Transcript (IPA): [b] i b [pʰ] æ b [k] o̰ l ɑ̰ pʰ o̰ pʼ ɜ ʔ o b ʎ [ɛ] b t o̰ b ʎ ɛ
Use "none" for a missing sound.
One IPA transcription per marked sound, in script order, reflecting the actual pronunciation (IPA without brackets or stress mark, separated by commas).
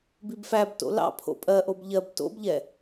b, f, t, ɜ